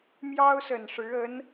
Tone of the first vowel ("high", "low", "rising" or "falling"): high